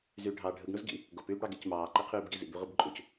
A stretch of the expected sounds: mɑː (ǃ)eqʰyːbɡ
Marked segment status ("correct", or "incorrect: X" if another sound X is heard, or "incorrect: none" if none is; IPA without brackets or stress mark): correct